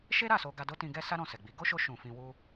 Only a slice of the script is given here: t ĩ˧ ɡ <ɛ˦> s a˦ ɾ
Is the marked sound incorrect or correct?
correct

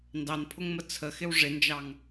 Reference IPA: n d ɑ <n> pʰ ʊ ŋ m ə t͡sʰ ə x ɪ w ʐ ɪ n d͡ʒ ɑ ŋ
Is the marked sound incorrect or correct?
correct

